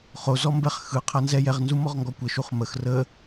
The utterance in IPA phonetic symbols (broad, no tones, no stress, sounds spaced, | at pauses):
χ o z ɔ m b ɛ χ x ɯ qʰ a n z ɛ j ɛ ʁ n z u m ɔ ʁ ŋ ɡ ɔ kʷ ə ʃ u χ m ə x r ə